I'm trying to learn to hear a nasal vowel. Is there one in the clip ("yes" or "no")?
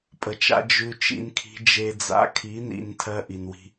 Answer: no